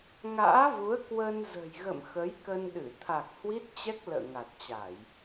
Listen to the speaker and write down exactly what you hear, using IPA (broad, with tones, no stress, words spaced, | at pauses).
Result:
ŋa̰ː˧˥vu˨˦ə̯ kwə˧nzə̤˨˩jɣə̰˧˨m xə˨˦jkə˧nɗɨ˧˩ t̪ʰa˨˩k̚ hwi˦˥t̚t͡ɕɛ˦˥k̚ lə̰ː˧˨ŋa˨˩t̚t͡ɕa˧˩˨j